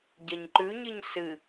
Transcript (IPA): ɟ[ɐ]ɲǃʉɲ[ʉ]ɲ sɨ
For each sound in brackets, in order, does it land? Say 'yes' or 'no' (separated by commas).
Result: yes, no